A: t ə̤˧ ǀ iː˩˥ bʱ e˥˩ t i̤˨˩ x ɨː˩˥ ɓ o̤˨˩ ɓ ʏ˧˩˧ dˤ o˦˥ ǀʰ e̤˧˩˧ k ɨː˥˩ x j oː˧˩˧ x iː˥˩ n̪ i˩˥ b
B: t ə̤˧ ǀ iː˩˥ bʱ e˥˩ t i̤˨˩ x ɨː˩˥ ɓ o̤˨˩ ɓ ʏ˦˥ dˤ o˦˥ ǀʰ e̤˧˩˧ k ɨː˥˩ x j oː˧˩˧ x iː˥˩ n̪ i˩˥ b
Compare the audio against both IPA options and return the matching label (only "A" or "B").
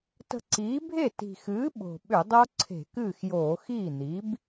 A